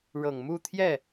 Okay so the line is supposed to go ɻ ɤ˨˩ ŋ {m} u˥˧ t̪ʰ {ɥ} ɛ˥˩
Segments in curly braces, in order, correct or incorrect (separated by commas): correct, incorrect